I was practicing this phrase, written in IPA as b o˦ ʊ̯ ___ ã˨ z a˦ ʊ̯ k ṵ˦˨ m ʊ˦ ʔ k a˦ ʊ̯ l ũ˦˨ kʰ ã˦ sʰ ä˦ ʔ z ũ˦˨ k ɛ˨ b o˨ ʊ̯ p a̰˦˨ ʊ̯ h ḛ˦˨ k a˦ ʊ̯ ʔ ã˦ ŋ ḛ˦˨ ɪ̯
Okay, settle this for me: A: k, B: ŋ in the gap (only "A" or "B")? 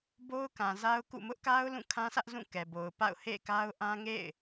A